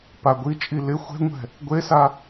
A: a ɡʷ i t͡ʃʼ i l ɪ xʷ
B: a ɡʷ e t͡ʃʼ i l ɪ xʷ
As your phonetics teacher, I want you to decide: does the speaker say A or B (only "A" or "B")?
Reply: A